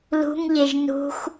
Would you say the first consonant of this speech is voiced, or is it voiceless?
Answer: voiced